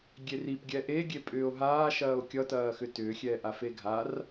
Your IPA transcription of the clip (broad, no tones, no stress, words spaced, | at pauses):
ɡʲerip ɡʲɛʔe ɡʲepʼʏːo̯ɦaː ʃɐːo̯kʲʌ tɐːxʏtʏː xʲɛːʔafeɡʱar